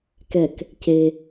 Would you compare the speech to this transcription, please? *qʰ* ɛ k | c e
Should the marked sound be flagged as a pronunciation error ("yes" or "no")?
yes